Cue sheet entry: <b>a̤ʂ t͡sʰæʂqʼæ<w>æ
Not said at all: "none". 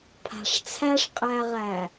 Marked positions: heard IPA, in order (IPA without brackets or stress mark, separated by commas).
pʰ, ʁ